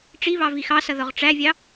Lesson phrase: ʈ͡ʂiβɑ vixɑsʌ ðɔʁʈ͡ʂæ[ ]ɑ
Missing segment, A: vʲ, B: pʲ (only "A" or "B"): A